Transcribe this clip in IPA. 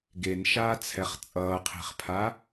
ɡ e n ʃ aː t͡sʰ ɛ χ t͡sʼ ʌː qʰ e̤ χ pʰ a

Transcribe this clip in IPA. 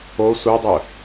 o sʷ œ dˤ œ

